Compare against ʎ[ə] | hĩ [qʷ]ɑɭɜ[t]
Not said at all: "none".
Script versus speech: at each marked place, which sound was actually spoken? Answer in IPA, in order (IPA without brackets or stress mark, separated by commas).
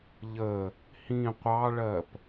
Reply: ə, qʷ, p